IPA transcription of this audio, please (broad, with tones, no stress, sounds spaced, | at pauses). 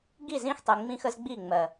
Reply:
ɡ i˦˨ z ĩ˦ x tˤ i˨ ŋ͡m ĩ˦ x ə˦ z ɡ͡b i˦˨ ŋ͡m ɜ˨